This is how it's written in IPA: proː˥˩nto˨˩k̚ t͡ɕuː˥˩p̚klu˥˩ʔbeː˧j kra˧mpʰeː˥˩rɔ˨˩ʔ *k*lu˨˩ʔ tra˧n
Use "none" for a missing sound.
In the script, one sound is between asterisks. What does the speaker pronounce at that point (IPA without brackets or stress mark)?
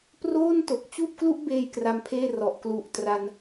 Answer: k